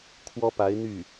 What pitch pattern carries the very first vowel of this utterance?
high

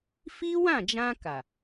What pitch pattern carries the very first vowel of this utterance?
high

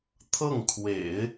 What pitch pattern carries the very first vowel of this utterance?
falling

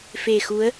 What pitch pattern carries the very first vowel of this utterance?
low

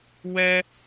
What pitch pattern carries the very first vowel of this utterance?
high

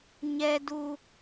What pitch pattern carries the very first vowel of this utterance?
low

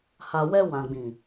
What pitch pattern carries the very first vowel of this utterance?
low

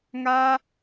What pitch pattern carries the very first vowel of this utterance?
high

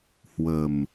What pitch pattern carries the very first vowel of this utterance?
low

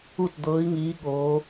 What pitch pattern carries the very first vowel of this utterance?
falling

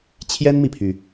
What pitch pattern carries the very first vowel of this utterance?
high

